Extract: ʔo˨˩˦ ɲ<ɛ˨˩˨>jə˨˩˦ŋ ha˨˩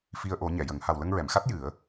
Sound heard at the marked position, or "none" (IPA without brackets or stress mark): ɛ˨˩˨